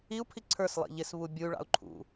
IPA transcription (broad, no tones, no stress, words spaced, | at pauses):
iu̯pʰi ǀʰə˞slˠḭ ʎɪsβu bʲuy̯ɭɑ̰u̯ ǃʰṵ